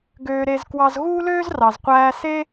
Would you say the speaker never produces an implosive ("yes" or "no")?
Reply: yes